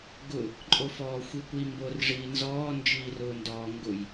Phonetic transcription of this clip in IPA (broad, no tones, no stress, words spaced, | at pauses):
ɡʊ | ǃʼofɔːxʷikʷi mborʐiːnzɔː nd͡ʒiːrʊːndɔː ŋɡʊj